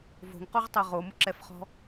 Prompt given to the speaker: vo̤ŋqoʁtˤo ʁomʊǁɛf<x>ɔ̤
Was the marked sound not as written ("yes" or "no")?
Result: yes